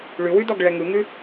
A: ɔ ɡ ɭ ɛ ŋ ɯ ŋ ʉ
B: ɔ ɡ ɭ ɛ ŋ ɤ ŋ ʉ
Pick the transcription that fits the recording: A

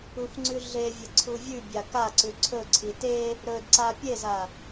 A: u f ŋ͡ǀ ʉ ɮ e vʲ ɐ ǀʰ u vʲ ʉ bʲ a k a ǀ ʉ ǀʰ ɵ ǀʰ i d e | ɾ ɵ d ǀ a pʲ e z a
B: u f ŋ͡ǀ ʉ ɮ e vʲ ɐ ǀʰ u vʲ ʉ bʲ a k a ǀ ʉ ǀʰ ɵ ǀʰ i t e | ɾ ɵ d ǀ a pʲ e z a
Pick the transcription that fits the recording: B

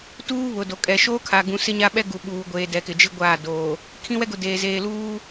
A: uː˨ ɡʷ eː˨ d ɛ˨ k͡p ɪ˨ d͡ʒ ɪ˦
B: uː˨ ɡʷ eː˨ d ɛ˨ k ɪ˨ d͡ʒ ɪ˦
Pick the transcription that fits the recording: B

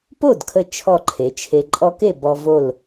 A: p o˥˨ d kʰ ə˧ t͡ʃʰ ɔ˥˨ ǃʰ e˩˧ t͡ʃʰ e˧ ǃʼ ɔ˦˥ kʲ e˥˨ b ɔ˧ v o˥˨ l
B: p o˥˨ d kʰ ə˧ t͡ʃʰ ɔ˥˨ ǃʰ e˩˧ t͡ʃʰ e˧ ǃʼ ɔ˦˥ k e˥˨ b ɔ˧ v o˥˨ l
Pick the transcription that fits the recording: B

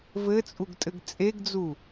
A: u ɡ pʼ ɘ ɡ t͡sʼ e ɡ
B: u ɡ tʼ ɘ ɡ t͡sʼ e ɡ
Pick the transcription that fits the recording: B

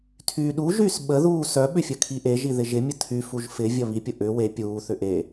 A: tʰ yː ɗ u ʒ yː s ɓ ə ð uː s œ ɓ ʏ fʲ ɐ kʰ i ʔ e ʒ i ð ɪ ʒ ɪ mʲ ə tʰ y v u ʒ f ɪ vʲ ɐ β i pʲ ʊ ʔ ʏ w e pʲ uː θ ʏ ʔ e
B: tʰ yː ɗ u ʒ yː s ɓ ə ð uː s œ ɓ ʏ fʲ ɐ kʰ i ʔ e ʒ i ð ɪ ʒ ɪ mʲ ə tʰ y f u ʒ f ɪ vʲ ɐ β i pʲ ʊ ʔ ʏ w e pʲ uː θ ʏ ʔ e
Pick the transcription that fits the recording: B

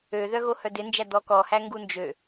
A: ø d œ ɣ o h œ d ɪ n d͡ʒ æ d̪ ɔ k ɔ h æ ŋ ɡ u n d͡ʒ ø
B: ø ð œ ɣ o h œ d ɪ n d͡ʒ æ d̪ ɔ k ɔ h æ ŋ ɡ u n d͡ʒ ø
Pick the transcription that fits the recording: B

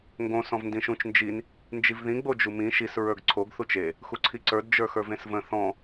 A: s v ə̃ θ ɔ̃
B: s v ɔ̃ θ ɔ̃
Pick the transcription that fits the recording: A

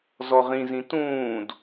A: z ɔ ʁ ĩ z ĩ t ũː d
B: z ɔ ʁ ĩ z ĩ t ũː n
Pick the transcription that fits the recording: A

